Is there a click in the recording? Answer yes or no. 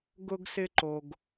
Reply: yes